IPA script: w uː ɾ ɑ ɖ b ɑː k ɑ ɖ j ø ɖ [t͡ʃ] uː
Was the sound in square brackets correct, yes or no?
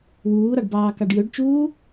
yes